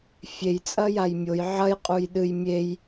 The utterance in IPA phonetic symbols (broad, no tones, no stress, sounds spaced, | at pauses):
fʲ e j t͡sʼ ɐ j a j mʲ o j ʕ ɐ j qʼ u j ɗ ɨ j mʲ e j